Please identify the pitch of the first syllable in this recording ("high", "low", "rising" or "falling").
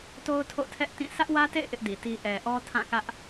high